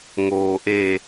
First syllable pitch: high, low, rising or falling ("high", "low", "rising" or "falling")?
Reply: low